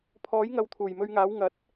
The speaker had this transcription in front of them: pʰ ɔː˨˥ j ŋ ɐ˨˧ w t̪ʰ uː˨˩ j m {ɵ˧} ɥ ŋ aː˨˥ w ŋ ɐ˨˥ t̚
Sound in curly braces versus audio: correct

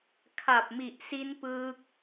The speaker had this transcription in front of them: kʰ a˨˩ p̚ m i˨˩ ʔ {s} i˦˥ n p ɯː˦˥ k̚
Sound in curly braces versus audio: correct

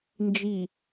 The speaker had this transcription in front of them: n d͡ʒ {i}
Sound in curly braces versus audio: correct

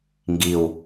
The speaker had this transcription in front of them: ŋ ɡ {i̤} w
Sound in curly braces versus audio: incorrect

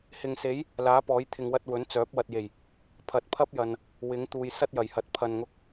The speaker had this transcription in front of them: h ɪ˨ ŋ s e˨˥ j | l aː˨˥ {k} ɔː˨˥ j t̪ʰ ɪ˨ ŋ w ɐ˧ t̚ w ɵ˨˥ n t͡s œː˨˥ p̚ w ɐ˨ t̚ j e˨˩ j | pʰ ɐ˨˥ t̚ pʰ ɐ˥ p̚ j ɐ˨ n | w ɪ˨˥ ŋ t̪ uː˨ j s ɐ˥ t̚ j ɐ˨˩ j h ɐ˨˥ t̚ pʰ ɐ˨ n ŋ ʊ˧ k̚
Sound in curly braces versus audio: incorrect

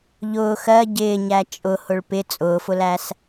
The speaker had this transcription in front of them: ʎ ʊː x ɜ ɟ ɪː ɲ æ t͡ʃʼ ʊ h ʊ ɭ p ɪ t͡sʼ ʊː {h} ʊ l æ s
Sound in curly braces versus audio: incorrect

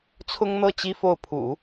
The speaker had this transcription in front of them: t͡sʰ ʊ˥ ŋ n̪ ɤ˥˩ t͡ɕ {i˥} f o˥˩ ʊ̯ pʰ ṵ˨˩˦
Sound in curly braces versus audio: correct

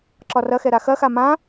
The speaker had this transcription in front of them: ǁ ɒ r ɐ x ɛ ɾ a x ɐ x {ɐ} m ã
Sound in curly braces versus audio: incorrect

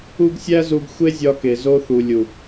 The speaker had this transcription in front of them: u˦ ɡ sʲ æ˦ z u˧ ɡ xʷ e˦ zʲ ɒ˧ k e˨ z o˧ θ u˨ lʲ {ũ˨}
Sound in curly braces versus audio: incorrect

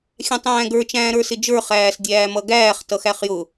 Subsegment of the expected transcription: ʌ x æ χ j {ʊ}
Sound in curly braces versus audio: correct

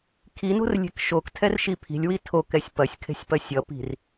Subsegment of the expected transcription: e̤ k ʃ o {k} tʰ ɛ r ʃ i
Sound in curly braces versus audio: correct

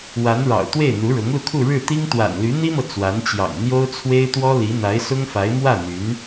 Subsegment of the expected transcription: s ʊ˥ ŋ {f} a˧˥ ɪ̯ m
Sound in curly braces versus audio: correct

